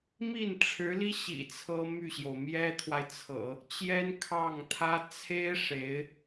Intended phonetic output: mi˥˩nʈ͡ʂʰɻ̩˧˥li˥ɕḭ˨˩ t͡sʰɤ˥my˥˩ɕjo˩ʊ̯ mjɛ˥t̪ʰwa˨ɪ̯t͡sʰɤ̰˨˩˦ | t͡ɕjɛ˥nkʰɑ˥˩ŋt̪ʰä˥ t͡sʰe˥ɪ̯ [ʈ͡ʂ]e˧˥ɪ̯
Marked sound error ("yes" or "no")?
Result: yes